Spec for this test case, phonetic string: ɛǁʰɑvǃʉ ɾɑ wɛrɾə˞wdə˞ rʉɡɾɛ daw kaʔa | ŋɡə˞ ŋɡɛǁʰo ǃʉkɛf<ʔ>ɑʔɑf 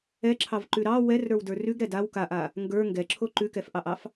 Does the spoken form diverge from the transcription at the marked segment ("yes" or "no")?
no